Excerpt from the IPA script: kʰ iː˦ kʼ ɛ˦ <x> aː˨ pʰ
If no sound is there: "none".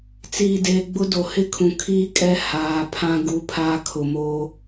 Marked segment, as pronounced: h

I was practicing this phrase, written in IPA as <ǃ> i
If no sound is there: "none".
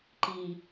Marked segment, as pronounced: ǃ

